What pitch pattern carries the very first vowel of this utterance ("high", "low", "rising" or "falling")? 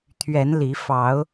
rising